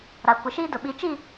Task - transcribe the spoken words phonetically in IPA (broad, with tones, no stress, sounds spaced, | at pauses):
ɾ a˨ kʷ ɪ˨ ʃ iː˦ d ʊ˨ ɓ i˨˦ t͡ʃ i˦˨